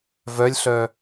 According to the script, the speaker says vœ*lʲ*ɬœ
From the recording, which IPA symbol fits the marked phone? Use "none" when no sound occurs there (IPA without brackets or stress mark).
lʲ